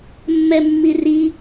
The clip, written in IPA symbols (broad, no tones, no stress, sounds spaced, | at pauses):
mː ɛ mː i r i